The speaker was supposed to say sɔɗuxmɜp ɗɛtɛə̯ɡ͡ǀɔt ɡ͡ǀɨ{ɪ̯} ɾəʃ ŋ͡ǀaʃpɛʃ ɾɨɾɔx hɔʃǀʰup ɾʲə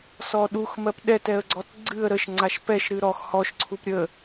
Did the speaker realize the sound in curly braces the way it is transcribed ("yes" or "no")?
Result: no